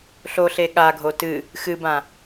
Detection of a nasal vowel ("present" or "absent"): present